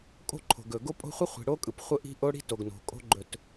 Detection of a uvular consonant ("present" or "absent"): present